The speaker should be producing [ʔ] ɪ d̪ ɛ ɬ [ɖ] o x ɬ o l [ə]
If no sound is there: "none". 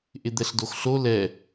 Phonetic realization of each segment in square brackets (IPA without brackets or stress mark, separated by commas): ʔ, d, ɛ